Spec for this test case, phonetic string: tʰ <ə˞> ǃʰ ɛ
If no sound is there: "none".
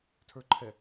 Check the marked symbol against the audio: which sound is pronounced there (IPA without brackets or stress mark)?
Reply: ə˞